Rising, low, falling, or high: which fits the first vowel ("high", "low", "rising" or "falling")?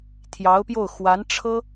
rising